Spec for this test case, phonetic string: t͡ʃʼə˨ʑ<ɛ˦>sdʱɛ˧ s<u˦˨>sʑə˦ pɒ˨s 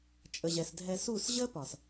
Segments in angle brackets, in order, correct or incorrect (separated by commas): incorrect, correct